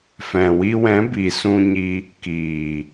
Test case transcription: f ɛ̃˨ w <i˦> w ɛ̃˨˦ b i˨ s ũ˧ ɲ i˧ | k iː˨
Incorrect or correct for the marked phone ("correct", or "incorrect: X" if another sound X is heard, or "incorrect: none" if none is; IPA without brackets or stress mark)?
incorrect: i˧